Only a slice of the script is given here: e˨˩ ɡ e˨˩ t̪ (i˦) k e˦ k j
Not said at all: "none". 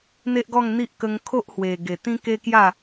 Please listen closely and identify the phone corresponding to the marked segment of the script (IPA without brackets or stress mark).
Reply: ĩ˦